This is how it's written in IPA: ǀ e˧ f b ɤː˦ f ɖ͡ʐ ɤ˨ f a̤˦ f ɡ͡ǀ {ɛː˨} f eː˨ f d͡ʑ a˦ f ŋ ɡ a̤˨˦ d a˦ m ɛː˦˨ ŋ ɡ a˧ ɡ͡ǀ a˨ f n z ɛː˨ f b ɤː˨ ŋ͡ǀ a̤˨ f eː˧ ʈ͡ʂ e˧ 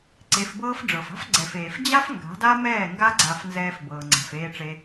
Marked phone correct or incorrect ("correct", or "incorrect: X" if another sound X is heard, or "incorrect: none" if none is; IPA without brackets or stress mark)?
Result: incorrect: ɛ˨